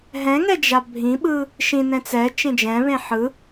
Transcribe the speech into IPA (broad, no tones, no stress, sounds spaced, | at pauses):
ɦ ɛ̃ ŋ ɛ d͡ʒ a bʱ ĩ ɓ ɯ | ʃ ĩ n ɛ̃ t͡s ɛ t͡ʃ ẽ d͡ʒ ɛ̃ β ẽ ħ ɯ